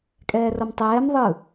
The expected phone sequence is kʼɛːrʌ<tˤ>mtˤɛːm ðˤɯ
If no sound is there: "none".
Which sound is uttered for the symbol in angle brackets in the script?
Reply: none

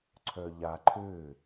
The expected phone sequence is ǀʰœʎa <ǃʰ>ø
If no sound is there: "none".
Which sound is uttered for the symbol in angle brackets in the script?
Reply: ǃʰ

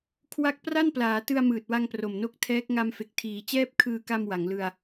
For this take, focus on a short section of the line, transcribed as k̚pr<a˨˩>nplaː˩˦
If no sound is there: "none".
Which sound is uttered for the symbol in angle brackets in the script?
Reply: a˥˩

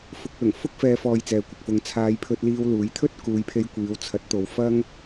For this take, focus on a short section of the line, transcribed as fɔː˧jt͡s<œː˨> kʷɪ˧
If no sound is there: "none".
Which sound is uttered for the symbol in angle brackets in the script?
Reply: ɛː˨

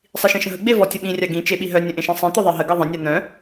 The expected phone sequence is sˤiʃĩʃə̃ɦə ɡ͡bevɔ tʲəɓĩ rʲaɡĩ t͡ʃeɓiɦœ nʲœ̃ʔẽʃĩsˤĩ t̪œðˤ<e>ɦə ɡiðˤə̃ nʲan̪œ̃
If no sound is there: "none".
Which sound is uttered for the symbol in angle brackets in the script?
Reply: e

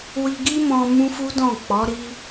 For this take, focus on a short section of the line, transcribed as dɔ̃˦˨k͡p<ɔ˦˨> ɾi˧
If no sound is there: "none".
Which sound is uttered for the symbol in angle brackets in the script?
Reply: ɔ˨˦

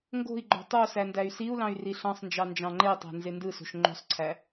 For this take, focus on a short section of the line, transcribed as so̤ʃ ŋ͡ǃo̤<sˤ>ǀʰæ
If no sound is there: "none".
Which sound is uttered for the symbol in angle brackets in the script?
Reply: sˤ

